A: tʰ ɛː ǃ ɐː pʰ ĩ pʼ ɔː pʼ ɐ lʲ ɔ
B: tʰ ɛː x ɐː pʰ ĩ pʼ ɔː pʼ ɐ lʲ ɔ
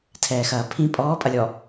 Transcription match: B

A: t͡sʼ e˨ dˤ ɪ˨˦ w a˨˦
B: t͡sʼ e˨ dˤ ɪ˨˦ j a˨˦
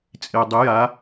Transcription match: B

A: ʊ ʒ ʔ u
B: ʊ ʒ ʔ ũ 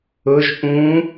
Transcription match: B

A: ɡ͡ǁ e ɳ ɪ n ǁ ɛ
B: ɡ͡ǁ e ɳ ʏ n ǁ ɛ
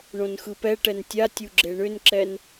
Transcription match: B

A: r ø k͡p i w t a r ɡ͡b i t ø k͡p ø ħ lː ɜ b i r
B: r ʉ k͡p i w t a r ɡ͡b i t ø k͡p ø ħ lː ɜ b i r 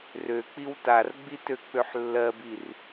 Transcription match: A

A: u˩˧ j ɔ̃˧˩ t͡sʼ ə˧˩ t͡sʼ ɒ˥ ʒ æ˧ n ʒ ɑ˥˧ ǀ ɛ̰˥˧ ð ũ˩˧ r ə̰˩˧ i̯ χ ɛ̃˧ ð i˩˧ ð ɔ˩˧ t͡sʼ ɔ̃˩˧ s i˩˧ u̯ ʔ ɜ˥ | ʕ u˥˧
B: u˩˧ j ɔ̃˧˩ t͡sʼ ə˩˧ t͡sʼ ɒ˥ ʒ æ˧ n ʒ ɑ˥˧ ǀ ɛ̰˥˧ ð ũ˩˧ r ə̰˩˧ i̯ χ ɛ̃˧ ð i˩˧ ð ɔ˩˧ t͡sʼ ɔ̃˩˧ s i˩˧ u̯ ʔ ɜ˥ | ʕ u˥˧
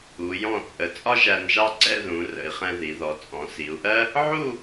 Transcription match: B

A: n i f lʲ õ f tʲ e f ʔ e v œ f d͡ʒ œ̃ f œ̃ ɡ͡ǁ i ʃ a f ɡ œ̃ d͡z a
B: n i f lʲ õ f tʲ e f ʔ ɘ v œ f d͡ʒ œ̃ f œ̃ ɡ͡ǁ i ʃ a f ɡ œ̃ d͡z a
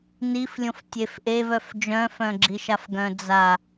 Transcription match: A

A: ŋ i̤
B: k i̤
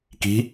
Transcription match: B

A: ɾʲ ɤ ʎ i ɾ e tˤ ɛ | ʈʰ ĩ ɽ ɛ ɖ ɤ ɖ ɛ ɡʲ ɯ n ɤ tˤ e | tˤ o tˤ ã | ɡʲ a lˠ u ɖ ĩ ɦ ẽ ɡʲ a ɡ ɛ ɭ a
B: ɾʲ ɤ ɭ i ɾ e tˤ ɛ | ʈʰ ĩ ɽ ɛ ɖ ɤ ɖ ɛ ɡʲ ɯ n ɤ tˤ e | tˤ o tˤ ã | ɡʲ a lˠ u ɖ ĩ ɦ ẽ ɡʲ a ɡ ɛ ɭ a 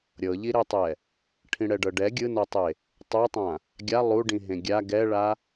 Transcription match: A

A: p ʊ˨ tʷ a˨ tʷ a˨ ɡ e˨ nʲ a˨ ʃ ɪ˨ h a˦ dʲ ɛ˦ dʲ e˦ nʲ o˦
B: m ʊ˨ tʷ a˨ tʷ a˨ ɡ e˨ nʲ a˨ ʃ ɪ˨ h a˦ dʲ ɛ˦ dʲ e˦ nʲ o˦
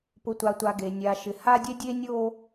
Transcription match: A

